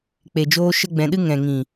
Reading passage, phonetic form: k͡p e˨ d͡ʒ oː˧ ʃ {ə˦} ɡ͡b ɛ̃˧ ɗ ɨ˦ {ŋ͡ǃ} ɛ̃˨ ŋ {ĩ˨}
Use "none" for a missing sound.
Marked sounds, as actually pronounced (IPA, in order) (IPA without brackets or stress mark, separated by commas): ə˦, ŋ, ĩ˨